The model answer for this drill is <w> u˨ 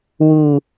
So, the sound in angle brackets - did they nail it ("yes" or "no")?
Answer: yes